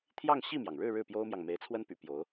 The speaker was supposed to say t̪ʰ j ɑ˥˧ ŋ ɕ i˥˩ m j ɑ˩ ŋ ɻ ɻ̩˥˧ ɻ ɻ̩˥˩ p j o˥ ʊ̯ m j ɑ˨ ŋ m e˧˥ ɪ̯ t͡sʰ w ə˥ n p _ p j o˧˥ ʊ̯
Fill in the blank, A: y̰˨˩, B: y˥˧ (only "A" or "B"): A